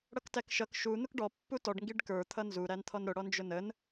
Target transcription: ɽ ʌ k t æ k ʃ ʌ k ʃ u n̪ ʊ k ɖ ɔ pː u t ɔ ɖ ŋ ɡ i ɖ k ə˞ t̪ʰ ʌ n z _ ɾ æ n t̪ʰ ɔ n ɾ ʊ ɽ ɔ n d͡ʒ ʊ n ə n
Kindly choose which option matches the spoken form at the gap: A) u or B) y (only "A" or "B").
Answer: A